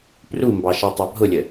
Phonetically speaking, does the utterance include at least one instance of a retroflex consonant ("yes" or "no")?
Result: no